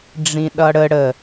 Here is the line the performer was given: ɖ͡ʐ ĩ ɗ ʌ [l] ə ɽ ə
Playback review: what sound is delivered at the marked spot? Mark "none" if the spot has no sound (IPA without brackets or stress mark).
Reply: ɽ